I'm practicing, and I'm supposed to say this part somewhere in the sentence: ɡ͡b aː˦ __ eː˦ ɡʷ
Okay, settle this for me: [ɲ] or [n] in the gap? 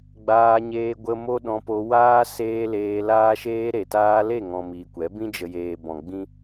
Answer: ɲ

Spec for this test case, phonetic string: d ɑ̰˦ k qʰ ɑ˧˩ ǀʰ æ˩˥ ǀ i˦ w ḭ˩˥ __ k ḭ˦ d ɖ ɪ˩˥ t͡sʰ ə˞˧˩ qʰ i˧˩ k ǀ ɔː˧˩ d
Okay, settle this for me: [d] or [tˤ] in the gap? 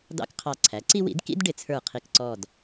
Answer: d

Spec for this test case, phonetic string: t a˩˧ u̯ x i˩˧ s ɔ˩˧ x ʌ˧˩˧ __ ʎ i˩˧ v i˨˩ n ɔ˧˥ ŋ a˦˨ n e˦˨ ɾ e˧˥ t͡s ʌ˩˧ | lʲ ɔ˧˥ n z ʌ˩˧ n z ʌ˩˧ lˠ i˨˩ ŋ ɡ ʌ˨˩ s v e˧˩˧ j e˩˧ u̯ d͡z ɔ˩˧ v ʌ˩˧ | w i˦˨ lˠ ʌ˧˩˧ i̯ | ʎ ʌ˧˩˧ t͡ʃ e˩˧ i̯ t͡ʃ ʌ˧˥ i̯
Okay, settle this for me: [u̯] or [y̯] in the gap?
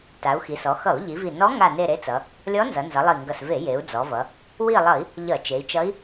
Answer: u̯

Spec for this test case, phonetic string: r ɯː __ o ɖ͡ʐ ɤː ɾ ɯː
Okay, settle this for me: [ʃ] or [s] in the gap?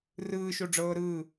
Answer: ʃ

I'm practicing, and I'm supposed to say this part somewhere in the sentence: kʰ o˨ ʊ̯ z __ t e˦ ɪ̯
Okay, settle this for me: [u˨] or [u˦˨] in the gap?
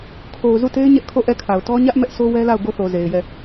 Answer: u˦˨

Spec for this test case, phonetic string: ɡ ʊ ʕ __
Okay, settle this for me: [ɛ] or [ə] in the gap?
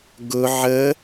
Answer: ə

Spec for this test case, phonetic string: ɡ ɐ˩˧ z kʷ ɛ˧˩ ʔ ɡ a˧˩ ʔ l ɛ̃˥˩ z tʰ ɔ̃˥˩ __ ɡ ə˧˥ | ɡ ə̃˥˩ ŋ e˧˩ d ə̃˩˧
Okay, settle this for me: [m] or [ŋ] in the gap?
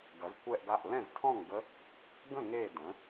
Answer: ŋ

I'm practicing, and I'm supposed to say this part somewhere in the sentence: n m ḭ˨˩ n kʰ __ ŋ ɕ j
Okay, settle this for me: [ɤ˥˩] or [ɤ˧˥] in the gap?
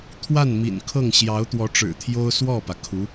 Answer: ɤ˥˩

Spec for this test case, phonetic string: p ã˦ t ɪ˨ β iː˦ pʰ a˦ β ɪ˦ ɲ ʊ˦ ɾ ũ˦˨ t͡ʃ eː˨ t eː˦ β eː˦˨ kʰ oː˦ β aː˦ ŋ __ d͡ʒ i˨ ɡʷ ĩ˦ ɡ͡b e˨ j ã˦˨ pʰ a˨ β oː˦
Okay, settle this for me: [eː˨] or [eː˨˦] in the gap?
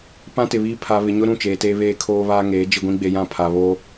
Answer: eː˨˦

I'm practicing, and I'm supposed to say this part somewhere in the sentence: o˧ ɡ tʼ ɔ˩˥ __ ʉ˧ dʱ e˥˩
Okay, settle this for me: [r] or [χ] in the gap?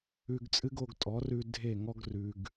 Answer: r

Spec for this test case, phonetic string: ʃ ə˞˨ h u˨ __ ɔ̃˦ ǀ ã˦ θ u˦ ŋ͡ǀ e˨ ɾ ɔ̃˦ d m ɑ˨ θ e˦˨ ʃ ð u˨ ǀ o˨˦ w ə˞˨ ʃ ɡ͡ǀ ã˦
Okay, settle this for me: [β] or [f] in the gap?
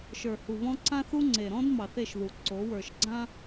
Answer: β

